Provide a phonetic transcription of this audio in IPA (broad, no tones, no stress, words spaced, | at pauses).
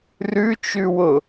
rʉt͡ʃʉwʊ